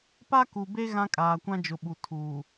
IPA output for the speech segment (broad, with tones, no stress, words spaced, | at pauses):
pa˦ku˨be˦ ɣã˦kʼaː˨kʷã˦d͡ʒʊ˨ ɓu˨tʰuː˨